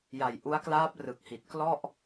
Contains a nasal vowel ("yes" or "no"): no